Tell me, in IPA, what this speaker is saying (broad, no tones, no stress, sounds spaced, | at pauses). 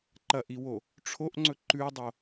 ǃ ɐ ʔ i w o | ʈ͡ʂʰ o ʔ ŋ͡ǀ ɵ ǃ ʉ dˤ o